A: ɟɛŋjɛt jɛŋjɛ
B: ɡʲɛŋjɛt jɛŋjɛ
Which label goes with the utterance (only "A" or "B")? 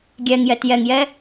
B